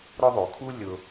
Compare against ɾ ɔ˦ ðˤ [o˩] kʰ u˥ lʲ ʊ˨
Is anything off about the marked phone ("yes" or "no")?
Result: no